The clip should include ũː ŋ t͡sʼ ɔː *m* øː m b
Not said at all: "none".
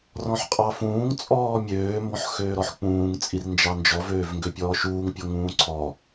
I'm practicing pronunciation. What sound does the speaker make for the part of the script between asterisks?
mʲ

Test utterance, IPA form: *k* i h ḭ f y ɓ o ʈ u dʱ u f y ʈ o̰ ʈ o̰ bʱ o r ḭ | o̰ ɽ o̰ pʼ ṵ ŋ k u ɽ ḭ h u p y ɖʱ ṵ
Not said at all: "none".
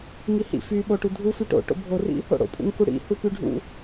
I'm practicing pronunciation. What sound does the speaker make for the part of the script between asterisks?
ŋ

